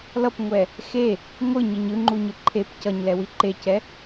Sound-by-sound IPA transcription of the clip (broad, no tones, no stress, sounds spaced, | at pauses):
l ʌ p ŋʷ ɛ | x e | ŋʷ ɯ ɲ ɯ ɲ ɯ ŋ͡ǃ u ɲ ɯ ǃʰ e p c ʌ ɲ l ɛ w i ǃ e c ɛ